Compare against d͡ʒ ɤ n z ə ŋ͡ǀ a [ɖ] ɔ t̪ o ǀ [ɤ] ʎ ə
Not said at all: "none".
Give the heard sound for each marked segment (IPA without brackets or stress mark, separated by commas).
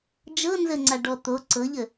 ɖ, ɤ